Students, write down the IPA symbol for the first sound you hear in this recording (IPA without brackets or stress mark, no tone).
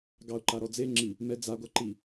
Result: ɡ